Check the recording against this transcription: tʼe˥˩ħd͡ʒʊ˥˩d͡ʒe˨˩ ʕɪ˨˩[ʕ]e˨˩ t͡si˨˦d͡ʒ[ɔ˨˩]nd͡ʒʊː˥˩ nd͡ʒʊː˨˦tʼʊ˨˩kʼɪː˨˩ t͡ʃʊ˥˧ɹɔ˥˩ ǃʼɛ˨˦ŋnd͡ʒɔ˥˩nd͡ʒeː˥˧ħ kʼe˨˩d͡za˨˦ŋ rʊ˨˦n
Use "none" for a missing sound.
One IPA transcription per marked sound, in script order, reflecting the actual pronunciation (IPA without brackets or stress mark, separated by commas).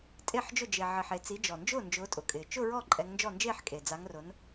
ħ, ɔ˨˩